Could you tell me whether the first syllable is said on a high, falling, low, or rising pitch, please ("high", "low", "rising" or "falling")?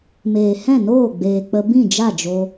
low